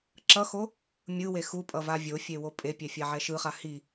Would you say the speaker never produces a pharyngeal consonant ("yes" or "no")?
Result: no